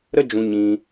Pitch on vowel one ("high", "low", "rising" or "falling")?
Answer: high